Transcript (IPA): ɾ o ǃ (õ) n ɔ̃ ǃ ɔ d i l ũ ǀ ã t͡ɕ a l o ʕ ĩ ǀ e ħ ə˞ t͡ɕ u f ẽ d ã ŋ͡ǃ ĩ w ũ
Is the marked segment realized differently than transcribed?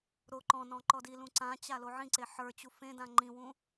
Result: yes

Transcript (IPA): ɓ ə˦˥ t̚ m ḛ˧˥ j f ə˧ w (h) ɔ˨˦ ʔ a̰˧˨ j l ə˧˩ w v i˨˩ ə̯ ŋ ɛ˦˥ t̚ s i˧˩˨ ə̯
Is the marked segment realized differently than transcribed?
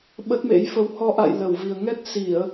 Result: no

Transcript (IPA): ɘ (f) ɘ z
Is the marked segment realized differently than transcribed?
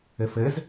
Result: no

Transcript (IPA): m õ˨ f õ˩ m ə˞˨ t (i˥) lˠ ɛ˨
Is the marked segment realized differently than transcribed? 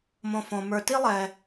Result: no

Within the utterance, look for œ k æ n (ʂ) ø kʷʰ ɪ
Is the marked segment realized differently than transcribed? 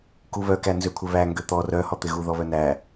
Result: yes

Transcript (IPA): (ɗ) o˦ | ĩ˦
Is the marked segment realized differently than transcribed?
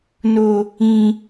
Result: yes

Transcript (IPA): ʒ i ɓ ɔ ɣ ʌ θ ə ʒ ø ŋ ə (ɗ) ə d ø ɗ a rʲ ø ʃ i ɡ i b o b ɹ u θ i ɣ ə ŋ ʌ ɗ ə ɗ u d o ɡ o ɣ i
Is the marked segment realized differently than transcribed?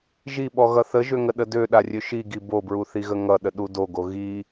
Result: no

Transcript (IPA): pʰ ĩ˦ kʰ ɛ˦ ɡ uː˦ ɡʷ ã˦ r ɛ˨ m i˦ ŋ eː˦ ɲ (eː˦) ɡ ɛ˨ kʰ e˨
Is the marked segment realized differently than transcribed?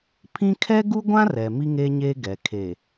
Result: no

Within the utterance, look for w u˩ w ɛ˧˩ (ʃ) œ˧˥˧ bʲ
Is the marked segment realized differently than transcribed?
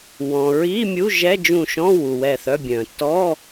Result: yes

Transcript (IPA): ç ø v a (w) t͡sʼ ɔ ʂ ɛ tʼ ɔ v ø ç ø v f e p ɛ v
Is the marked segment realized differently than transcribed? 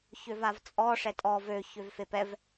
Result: yes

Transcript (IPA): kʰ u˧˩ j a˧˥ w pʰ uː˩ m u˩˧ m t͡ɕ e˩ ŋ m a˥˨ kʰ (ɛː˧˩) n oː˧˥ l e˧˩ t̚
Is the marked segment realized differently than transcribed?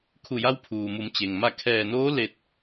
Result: no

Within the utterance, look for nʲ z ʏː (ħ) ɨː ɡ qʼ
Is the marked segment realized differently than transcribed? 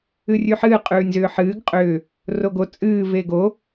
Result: no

